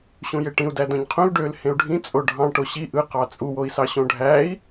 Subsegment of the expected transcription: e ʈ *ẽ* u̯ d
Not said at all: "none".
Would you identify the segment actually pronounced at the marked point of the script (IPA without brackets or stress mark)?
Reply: ĩ